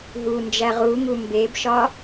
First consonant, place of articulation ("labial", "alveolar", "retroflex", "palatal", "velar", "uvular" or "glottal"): glottal